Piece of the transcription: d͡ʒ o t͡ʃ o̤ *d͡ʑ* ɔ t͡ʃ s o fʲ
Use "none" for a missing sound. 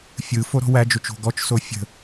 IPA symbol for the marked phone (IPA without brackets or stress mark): ɡ